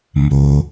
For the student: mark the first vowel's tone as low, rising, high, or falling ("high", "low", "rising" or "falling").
low